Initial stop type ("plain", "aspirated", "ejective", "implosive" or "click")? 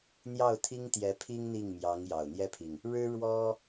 aspirated